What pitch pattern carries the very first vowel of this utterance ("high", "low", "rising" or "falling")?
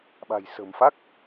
low